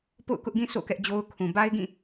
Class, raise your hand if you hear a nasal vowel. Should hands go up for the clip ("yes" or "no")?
yes